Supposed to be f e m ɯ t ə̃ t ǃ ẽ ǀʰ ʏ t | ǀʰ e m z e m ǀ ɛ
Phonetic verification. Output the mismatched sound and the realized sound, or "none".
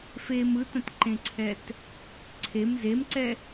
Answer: ʏ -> ɛ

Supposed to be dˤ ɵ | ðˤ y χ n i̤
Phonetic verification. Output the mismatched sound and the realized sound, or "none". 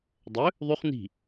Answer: none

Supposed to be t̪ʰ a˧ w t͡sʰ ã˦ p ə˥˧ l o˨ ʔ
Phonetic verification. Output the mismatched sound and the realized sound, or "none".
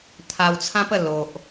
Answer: none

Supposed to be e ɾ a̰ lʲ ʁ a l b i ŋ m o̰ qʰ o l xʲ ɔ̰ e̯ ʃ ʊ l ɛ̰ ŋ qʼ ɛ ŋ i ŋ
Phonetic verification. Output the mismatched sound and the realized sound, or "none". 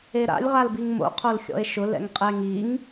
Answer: none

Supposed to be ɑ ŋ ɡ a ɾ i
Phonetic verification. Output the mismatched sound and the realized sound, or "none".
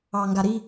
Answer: none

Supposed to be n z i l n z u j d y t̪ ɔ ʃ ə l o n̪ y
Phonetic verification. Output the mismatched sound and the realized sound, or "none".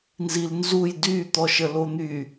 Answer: none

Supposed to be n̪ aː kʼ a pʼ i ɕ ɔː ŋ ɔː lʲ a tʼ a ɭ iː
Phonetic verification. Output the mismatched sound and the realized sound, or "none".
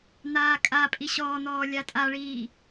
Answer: ŋ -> n̪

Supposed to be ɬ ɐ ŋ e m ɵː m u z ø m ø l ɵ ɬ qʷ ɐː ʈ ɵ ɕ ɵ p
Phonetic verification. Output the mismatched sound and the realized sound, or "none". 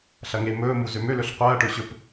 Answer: none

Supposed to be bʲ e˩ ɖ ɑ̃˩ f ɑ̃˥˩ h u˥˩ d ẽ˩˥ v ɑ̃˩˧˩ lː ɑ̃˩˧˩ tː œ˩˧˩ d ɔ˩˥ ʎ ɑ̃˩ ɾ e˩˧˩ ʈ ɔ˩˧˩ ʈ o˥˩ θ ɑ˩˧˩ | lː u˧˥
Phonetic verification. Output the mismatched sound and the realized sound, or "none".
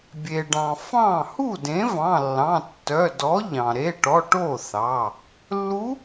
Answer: none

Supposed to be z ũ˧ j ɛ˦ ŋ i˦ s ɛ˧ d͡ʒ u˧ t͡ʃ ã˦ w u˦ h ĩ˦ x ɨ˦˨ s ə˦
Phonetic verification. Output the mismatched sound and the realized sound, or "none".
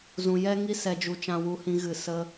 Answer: x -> ɣ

